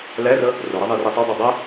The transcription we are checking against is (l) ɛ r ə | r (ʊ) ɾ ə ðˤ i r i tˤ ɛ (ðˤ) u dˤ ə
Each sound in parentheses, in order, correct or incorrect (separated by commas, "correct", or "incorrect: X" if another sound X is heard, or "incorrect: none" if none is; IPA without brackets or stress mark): correct, correct, incorrect: dˤ